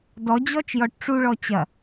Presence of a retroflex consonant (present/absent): present